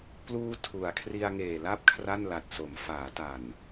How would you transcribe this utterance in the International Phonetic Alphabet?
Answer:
pluː˧ tʰu˩˦a̯kʰri˧a̯ŋeː˨˩la˦˥p̚ kʰra˥˩nla˨˩t̚so˩˦m faː˩˦ta˨˩n

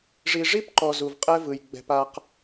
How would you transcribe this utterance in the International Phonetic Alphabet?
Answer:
ʐi˨ʐi˦pǃɔ˨ zu˨vqʼɛ˦vɯ˨j ɡ͡bɛ̤˦pa˦q

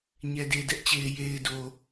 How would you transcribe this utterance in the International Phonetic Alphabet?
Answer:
ɲɛ˨de˨dɛ˦ʔt͡ɕe˨ɪ̯ je˨ɪ̯do˨

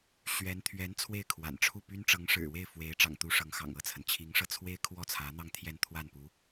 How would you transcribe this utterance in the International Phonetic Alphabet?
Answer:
ɕɥɛ˧˥n t̪ʰɥɛ˧˥n t͡sʰwe˥˩ɪ̯kʰwa̰˨˩nʈ͡ʂʰu˥˩py˥n ʈ͡ʂɤ˧˥ŋʂɻ̩˨˩we˥˩ɪ̯ fwe˧˥ɪ̯ ʈ͡ʂɑ̰˨˩ŋt̪u˧˥ ʂɤ˧˥ŋxɑ̰˨˩ŋɤ˥˩t͡sʰə˩n t͡ɕʰi˧˥ŋʂɤ˧t͡sʰwe˥ɪ̯ kʰwɔ˥˩t͡sʰä˧˥n̪ɑ˥˧ŋ t̪ʰjɛ˥˧nt̪ʰwa˥˩npu˧˥

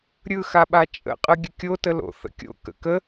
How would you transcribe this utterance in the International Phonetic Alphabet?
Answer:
ɾʲɯxa ɓat͡ʃʼə̰qʼɯ ɡʲəkʲotəlo̰ θə̰kʲo̰ kə̰kə

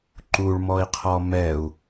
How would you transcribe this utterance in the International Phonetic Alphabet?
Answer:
ǃuɭmɔi̯qʰɔ mɛu̯

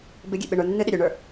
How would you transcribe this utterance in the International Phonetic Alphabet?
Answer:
bɪɡʲḛ ɓɪɳə˞ nːɨɗɪ ɾʲɵɳə˞

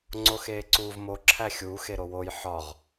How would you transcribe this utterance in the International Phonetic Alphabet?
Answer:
ŋ͡ǀoxeːǀuːvmo ǁʰæxʲuːx eɾowoj ħɒʁ

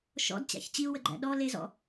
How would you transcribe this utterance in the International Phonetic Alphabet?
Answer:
ʃɔ̰dt͡ɕæ̰ç t͡ɕiu̯wəɡ͡ǃæ̰ ɗɔ lezɔ̰

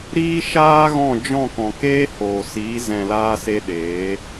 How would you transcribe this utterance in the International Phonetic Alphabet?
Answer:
ɾiː˦ʃaː˦ ɣɔ̃˦˨d͡ʒɔ̃˦˨ kɔ̃˨keː˦hoː˨ siː˨˦ zɛ̃˨laː˧ se˦ɗeː˨˦

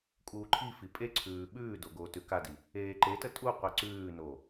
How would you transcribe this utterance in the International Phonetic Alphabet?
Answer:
kʼuːǃʰifi pʼeǀʰʉː ɓʉːdo ɡoːtʉkadi | eːǃetə tʼuqʷi ǀʉːno

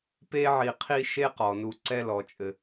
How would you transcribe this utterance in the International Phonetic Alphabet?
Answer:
pe˦ʕi˨qʰi˦ ʃe˥qɔ˩nu˨ ǀɛ˦lɔ˩t͡ʃʼɘ˩

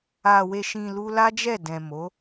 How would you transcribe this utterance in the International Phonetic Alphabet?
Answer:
a˨we˨ʃĩ˨ lu˧la˦d͡ʒɛ˦˨dɛ̃˨ mo˨˦

